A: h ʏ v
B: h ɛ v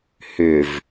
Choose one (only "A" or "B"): A